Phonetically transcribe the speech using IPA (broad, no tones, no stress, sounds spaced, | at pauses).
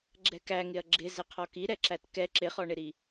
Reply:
ɡ͡ǁ ɛ k æ ŋ ɪ ɐ̯ ɡ͡ǁ ɪ z ɪ qʰ ɔ k i ɾ ɛ ǁ æ t k ɛ ǁ ɪ χ ɔ ɳ ɪ ɾ i